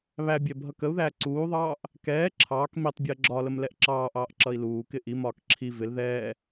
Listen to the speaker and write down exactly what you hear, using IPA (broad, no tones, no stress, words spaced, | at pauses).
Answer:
βæbʲɛ bʱʌkəu̯ðæː ǀuːðˤɑːʔ | kɛː ǁʰɑːk mitˤbʲəː ɡ͡ǁɒləm lɛʔǁɑːʔɑːʔ ǁʌi̯luːkɪ ʔimɒːk ǁʰi vɪl ðɛː